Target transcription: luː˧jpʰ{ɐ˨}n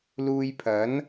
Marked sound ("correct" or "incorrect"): incorrect